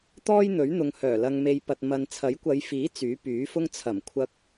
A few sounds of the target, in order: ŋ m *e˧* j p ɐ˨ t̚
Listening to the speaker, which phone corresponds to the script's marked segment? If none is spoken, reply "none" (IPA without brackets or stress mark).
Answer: e˧